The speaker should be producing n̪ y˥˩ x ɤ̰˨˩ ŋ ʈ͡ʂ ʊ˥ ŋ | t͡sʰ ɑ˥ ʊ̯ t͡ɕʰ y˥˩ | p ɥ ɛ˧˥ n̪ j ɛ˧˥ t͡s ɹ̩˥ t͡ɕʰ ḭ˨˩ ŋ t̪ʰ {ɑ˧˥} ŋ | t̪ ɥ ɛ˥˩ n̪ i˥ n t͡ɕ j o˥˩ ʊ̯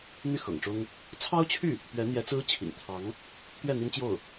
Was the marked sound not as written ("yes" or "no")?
no